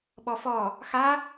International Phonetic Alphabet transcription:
ɓ ɔ f ɔ | x a

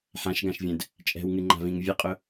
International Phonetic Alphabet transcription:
ħ ã ʃ ɡ ã ʃ vʲ ɛ̃ d | t͡ʃʼ ɛ̤ w ŋ ɨ ŋ͡ǃ a̤ v ĩ ŋ vʲ ə qʼ ʊ

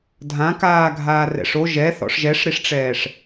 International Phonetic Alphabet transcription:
dʱ ã k aː ɡʱ aː r ɛ̰ ʂ o ʒ ɛ θ ɔ̰ ʂ ʒ ɛ ʂ ɾ i ʂ ʈ͡ʂ ɛː ʂ

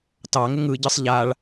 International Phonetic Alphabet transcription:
t ɑ ŋ ɪ ŋ ɯ ɟ ɯ sˤ ʎ a ɭ

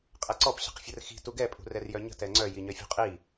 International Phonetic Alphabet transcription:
qʼ ɛ ǀ ɔ p ɕ ə̤ q fʲ ə r x i̤ t u ɡ ɛ pʼ ṳ r ɛ r j œ ɲ ə̤ t ɛ ŋ͡ǀ œ j i ɲ œ fʲ ṳ qʼ i

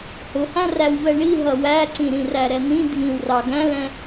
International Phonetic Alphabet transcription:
h ʊ h æ̃ r æ w v ɛ ɳ i ɦ ʌ w æ ǀ ĩ ɾ ĩ r æ ɾ ɛ n̪ ĩ dʱ ĩ w r ɑ ɡ æ̃ l ɛ̃

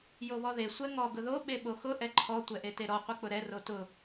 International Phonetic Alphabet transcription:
j o β ɔ ð e sʷ ɛ ŋ ɔ ɡ ʊ ð o ɓ e ɓ o x ʊ ʔ ɛ ǃʰ ɔ tʷ ɛ ʔ e t e ɾ ɔ qʷ e k͡p ʊ ɾ ɛ r o t ʊ

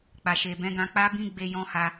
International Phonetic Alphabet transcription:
k͡p a˨ ʃ e˨ b ɛ̃˨˦ ɡ ã˧ k͡p a˦ b ĩ˦ ɡ͡b e˧ j ɔ̃˦ h a˧

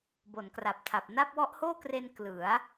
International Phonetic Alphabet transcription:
b o˩˦ n k r a˨˩ p̚ tʰ a˨˩ p̚ n a˥˩ p̚ w ɔ˦˥ ʔ h oː˥˩ k r e˧ n k l ɯ˩˦ a̯

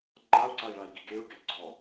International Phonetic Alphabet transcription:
ŋ͡ǃ a u̯ ǀ a i̯ ɭ a i̯ ɡ i ɡ e ɹ ɡ ɛ ɡ͡ǀ ɔ

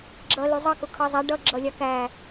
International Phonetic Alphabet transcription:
ɡ͡ǁ ʌ l u zˤ ɑ k ʊ kʰ ʌ zˤ æ ɖ ʌ ɡ͡ǁ ʌ lʲ ɑ k æ

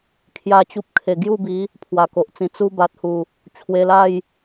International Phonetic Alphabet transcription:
kʰ j a˦ t͡ɕ u˦ p̚ kʰ e˨˩ ɡ j u˥˧ b i˨˦ | pʰ w a˨˩ k o˨ ʔ t͡s ĩ˧ t͡s u˧ b a˨ t̚ h u˨˩ | t͡ɕʰ w e˧ l a˥˧ j

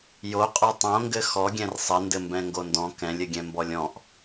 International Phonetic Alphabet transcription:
j o qʼ o tˤ õ ŋ ɡ ɘ x ɔ ɡʲ ɛ̃ r sˤ ɘ n d ɘ m b ɛ̃ ŋ ɡ o n d ɔ̃ k ɛ̃ lʲ ɘ ɡʲ ɛ̃ m b ɔ lʲ ɔ̃ ʔ

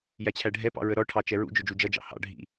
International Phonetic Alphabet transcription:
j æ t͡ɕʰ æ ɖʱ ɛ p ɑ̰ ɹ ə ɾ ɔ ʈʰ ɑ t͡ʃ ɛ ɹ ṵ d͡ʒ ʊ d͡ʒ u d͡ʒ ʌ d͡ʒ ɑ̰ h ɑ̰ ɖʱ ḭ

